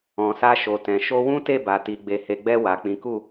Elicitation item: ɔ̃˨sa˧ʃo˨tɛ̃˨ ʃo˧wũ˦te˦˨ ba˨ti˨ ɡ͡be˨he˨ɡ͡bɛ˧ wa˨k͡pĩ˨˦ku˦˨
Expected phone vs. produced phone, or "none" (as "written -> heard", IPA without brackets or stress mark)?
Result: none